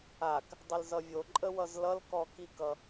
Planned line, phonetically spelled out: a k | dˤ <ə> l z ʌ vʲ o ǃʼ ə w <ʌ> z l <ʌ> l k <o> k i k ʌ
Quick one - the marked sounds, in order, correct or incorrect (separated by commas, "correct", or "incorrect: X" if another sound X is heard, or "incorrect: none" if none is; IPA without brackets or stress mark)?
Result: correct, correct, correct, incorrect: ɔ